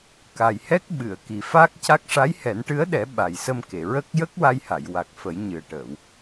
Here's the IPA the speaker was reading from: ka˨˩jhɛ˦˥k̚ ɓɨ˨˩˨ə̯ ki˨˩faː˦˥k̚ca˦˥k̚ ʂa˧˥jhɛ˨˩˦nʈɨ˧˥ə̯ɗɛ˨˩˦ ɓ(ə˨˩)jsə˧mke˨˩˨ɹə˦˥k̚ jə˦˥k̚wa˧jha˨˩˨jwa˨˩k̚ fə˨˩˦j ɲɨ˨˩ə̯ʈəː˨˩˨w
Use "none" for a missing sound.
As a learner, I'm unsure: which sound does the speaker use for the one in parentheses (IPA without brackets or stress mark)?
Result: a˨˩